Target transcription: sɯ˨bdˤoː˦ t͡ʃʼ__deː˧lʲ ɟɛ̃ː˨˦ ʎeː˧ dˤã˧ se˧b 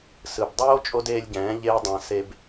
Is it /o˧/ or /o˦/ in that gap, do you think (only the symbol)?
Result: o˧